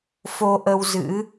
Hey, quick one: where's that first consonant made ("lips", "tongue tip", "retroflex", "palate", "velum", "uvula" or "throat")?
lips